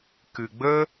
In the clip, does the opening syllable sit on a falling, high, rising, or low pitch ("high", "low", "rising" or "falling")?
low